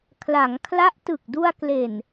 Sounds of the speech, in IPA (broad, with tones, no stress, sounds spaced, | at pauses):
kʰ l a˩˦ ŋ kʰ l a˦˥ ʔ t ɯ˨˩ k̚ d u˧ a̯ k l e˨˩ n